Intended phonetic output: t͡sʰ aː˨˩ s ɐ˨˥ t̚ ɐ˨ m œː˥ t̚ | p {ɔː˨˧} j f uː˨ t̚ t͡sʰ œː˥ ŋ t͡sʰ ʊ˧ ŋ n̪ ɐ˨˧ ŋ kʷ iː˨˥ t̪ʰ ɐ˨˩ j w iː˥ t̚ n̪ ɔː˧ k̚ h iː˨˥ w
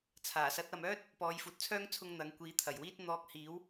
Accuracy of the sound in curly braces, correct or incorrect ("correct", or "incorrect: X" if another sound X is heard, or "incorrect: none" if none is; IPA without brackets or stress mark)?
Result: correct